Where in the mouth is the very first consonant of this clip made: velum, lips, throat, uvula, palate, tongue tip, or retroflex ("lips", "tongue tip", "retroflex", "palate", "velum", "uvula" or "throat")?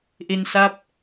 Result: throat